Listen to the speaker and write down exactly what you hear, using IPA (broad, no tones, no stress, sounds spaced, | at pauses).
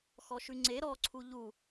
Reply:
x ɔ ʃ ʉ ŋ͡ǀ e ɾ ɔ ǀʰ u ʎ u